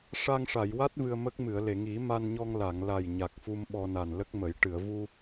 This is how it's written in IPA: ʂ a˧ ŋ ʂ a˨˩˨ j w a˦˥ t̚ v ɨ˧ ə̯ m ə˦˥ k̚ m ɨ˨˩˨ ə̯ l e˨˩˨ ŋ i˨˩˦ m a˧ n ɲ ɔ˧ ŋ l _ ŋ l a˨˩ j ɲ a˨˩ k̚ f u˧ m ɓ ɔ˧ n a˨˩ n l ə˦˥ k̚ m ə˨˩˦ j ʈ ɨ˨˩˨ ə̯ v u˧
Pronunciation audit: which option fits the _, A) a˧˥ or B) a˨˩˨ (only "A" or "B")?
B